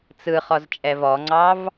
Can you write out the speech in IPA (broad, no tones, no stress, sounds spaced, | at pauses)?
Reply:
t͡s ɯ χ ɔ z t͡ʃʼ ɛ v ɔ ŋ͡ǀ ɑ v